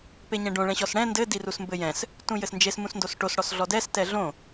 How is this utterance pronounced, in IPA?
p e ɲ ɛ̃ ɖ õ ɭ ɛ̃ ɕ ɔ s ɽ ɛ̃ n d ɘ d i r u s m b ɘ j ɛ̃ s | t ũ j ɘ s n d͡ʒ e s m ũ s n d o s ʈ o s ɽ ɔ s ɮ ɔ d ɛ s t ɛ ɮ õ

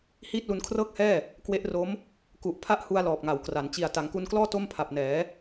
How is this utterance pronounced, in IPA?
h iː˥˩ t̚ l u˧ n kʰ r ɤː˥˩ k̚ h ɛː˥˩ | k w e˦˥ ʔ r o˦˥ m | k u˨˩ ʔ pʰ a˥˩ ʔ h u˧ a̯ l ɔː˨˩ p̚ ŋ a˩˦ w k r a˩˦ n t͡ɕ i˨˩ a̯ t a˩˦ ŋ k u˧ n k l ɔː˥˩ t o˥˩ m pʰ a˨˩ p̚ n ɛː˩˦

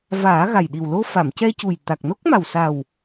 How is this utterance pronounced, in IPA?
v aː˨˩˦ ɣ a˨˩ j ɗ i˨˩ w l o˧ f a˨˩˨ m c ɛ˧ c u˨˩ j t̪ a˨˩ k̚ n o˦˥ k̚ m a˨˩ w s a˨˩ w

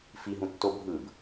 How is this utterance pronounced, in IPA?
f i ɦ ũ tː o bʱ ɯ b

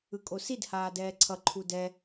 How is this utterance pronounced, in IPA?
ɯ kʼ o s i d h aː d ɛː ǀʰ ʌ ǃʰ u d ɛ

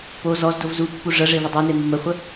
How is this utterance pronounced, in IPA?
p o z ɔ z d o v z u pː u ʐ ə ʐ e v ə dˤ o n e mː ə χʷ ə

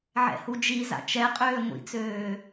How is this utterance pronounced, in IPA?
ʕ ɛ̰ h u d͡ʒ i z a̰ t͡ʃ ɛ qʼ øː ŋʷ ḭ t͡s øː

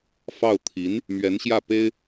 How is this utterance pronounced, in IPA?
f ɑ˥˩ ʊ̯ t̪ʰ i˧˥ n | m ɥ ɛ˧˥ n ɕ j ä˥˩ p e˥ ɪ̯

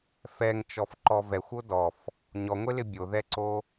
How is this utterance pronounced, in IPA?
f ɛ ŋ t͡ʃ ɔ f ǃ ɔ v ɛ xʷ o d ɔ f | ɲ ɔ ŋʷ e l ɪ bʲ o ð ɛ ǀ o

